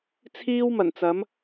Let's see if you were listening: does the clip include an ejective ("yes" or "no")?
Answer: no